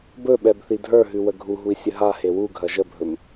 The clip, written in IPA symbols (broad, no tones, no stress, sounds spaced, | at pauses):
b ɵ ɓ ɛ b θ i dʱ ə˞ ɦ ʉ w ə ɡʱ u ɦ u i̯ sʲ ə ɦ a h e w u ɡʱ ɐ ʒ ə bʱ ɵ m